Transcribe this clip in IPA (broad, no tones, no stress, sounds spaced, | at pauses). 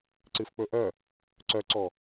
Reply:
ǀ ɨ f k͡p ɵ ʔ œ | ǀ œ ǀ ɔ